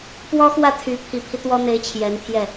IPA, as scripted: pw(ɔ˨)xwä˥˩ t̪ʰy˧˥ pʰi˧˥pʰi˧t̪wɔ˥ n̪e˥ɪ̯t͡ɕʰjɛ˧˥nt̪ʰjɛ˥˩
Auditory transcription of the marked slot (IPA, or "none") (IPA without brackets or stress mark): ɔ˥